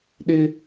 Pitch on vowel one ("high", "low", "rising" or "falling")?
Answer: high